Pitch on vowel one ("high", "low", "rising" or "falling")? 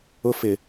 high